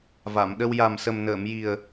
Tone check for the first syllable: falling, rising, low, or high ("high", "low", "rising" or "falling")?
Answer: low